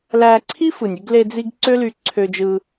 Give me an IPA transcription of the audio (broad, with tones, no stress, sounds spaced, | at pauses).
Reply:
l æ˧ ǀʰ i˦ f ɯ˨ nʲ y˧ ɡ l e˧ d͡z i˧ ɡ ǀ ø˦ l y˧ ǀʰ ø˧ d͡ʒ ɯ˧